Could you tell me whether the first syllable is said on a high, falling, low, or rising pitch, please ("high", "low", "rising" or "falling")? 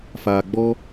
low